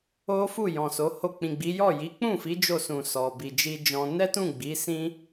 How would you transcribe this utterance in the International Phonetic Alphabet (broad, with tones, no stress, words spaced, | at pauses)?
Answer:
o˦fu˦˨ jɔ̃˨so˨˦ho˦˨ k͡pĩ˨ɡ͡bi˨˦jɔ˦˨ ji˨˦k͡pũ˦˨fi˨˦ d͡ʒo˦˨sũ˨ sɔ˨bi˨ d͡ʒi˧ d͡ʒɔ̃˧ nɛ˦tũ˦˨ ɡ͡bi˨˦sĩ˦